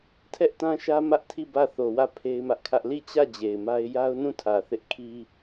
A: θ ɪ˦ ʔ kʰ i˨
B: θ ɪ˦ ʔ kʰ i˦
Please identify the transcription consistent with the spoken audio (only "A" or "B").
B